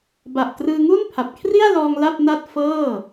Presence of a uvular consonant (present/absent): absent